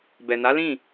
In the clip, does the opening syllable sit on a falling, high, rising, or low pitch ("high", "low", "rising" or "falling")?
low